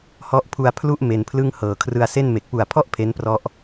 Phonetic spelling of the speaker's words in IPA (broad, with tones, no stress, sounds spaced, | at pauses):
h ɔ˦˥ ʔ pʰ u˧ a̯ pʰ l u˥˩ ʔ m e˧ n pʰ l ɯ˥˩ ŋ h ɤː˨˩ kʰ r ɯ˧ a̯ s e˥˩ n m e˨˩ k̚ p u˨˩ a̯ pʰ ɔ˥˩ ʔ pʰ e˦˥ n p r ɔ˦˥ ʔ